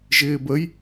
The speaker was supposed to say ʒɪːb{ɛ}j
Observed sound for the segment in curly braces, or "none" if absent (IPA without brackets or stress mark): ə